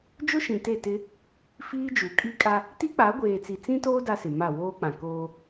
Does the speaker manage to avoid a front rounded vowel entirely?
yes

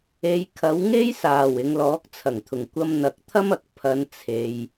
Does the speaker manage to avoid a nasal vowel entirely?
yes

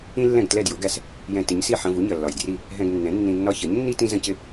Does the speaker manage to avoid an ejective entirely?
yes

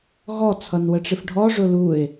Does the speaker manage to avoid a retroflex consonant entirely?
no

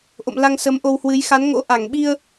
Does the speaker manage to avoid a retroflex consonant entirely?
yes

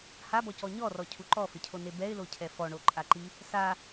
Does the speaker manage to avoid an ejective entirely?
no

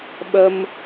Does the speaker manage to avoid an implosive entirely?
no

